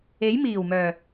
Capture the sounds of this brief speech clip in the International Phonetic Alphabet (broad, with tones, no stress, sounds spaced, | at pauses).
e˨˥ j m iː˨˩ w m œː˨˩